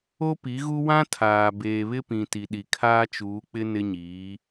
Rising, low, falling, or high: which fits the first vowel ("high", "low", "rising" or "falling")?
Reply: high